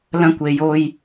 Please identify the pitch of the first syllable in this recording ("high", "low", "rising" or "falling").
high